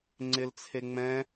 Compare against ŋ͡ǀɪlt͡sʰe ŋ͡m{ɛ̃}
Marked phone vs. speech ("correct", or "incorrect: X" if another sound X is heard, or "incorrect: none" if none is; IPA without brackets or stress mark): correct